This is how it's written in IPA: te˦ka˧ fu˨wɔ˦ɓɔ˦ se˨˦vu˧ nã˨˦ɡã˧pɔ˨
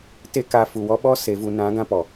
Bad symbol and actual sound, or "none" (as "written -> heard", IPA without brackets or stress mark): none